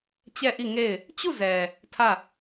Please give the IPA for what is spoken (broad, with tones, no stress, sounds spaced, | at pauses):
t͡ɕ ɛ˦˨ ʔ i˦˨ ŋ e˦˨ ɪ̯ | t͡ɕ u˦˨ z ɛ˨ | tʰ ä˦˨